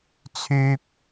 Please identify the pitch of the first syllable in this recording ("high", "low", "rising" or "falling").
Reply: high